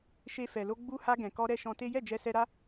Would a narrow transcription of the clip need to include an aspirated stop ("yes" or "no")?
no